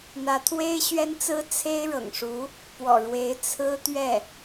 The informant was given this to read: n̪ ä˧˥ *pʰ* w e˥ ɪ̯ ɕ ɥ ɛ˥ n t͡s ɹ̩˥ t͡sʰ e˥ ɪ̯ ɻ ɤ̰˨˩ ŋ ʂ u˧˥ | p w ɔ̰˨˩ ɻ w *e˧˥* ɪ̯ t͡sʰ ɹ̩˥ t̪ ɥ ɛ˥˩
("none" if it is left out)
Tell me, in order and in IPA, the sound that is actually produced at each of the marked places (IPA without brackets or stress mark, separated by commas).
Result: t̪ʰ, e˧˥